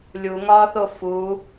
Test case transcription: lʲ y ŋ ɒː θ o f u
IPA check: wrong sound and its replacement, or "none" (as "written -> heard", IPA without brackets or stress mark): y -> u